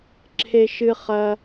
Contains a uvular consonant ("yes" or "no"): yes